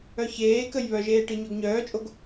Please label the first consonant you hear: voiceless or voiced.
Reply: voiceless